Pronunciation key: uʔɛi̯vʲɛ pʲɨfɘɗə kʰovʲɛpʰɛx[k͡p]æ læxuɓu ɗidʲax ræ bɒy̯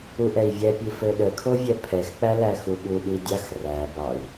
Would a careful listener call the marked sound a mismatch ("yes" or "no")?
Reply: no